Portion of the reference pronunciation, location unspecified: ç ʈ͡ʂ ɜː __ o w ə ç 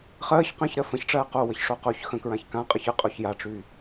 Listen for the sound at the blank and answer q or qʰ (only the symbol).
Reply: q